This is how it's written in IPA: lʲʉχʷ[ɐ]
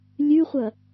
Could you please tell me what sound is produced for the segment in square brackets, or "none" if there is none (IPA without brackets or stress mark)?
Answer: ɐ